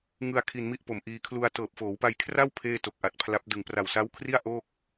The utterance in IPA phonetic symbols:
ŋɯ˧a̯ kʰi˧nmi˥˩ʔpo˨˩mʔiː˧ kʰlu˧a̯ tɤː˨˩p̚ foː˩˦wpa˧jkʰra˥˩w pʰeː˥˩to˨˩k̚ʔa˨˩t̚pʰla˦˥p̚ dɯ˨˩ŋ pra˨˩wsa˦˥wkʰri˥˩a̯ ʔo˥˩k̚

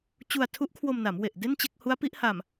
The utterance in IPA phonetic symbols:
t͡ɕu˧a̯tʰu˦˥ʔkʰwo˧mna˩˦m we˨˩ʔde˥˩nt͡ɕe˥˩k̚ hu˦˥a̯pi˦˥ʔha˨˩m

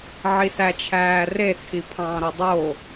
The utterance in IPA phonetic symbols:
ʕisæt͡ʃʰæːre t͡sʰipʰɑ̃ːɾodˤo

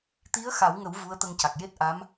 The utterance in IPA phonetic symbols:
t̪i˧˥ə̯xa˨˩˦wŋə˨˩˦w vu˧˥ə̯t̪ə˧ŋca˨˩k̚ je˦˥t̚ʔa˧˥m

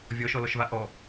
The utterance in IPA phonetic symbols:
vʲɔʃɔlɔʃva ʔɔ

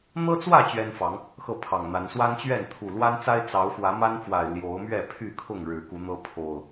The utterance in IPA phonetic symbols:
n̪ɤ˦t͡swä˥˨ t͡ɕɥɛ˦nfɑ˨˦ŋ | xɤ˥˨pʰɑ˨˩ŋn̪a˨˦n swa˦nt͡ɕɥɛ˥˨n t̪ʰu˨˩lwa˦nt͡sa˦ɪ̯ t͡sɑ˨˦ʊ̯fwä˨˦ma˦nfwa˨˩ɪ̯ ljo˨˦ʊ̯ mɥɛ˥˨pʰy˥˨kʰʊ˥˨ŋ ɻɻ̩˨˦ku˨˦n̪ɤ˦ pʰo˨˩ʊ̯

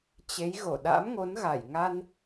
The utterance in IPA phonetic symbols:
t͡ɕe˨˦j ɣo˧˩ɗa̰˧˥mŋo˨˦n ɣa˧˩jŋa˧n

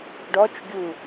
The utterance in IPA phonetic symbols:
ɖɔt͡ʃɡʲu

